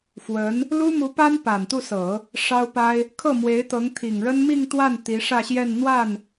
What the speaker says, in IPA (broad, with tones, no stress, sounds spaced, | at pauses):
f w ə˧˥ n | l u˥ m u˧˥ p a˥ n p a˨˩ n t̪ u˥˩ s ɤ˨˩˦ | ʂ ɑ˥ ʊ̯ p a˥ ɪ̯ | kʰ ɤ˥˩ m w e˧˥ ɪ̯ t̪ ɤ˧˥ ŋ t̪ʰ i˨˩ ŋ ɻ ə˥ n m i˥˧ ŋ t̪ w a˥˩ n t̪ i˧˥ ʂ ä˥˧ ɕ j ɛ˥˧ n n̪ w a˥˩ n